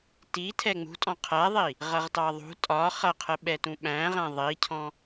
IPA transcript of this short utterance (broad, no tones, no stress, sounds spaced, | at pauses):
t i tʰ ɛ ŋ͡m ṳ tʼ ɔ̃ qʰ æ ðˤ i | ʁ ʌ ʁ t ɑ ðˤ ṳ tʼ ɒ χ ʌ qʰ ə ɓ ɛ t ũ ɓ æ̃ ʁ æ̃ ðˤ i cʰ ɔ̃